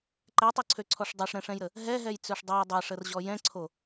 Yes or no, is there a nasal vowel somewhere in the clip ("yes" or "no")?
yes